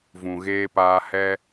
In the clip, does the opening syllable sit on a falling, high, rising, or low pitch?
low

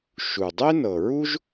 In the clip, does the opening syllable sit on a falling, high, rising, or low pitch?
low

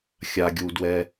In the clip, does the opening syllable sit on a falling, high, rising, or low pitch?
low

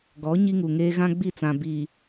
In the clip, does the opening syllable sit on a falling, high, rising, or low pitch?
rising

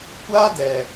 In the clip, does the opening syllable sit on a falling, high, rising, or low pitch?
high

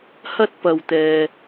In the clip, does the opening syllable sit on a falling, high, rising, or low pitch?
high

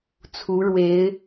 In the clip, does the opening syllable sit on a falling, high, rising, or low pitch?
rising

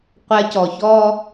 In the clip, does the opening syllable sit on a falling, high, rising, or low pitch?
high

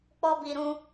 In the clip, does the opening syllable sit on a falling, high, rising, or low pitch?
high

